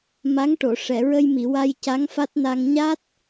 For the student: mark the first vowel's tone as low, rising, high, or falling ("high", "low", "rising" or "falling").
rising